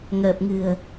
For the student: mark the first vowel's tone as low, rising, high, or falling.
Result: low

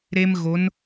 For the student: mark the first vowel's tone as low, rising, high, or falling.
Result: high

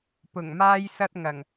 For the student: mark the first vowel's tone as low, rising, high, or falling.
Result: low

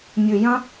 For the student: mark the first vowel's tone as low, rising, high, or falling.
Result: low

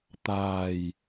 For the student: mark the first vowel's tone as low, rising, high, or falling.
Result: low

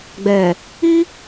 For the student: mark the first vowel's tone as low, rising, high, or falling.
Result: low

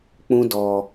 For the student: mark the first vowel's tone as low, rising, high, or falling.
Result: high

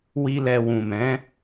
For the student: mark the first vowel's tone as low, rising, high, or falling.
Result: high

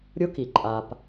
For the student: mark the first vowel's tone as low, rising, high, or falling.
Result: rising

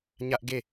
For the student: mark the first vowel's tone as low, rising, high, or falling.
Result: high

